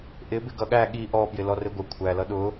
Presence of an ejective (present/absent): absent